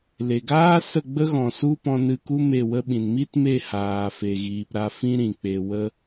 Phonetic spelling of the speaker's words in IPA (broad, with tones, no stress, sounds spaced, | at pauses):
l e˨ ɡ aː˦ s ə˦˨ ɡ͡b ə˦ ɣ ɔ̃˨ s u˦ p ɔ̃˧ n ɨ˧ k u˦ m e˦˨ w ə˦ ɓ ĩ˨ n m i˦ t m e˦˨ h aː˨ f e˨ ɣ iː˨ p ɾ a˧ f ĩ˦ ɾ ĩ˨ k͡p e˨ w ə˦